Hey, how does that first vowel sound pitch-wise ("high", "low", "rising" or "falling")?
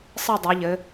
falling